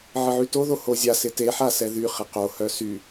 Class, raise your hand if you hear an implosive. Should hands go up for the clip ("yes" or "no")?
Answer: no